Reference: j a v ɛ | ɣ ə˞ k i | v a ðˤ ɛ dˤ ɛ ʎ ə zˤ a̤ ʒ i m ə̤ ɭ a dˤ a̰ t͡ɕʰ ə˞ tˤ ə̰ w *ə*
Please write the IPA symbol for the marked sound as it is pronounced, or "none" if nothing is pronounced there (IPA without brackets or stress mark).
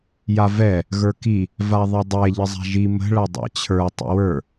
ə˞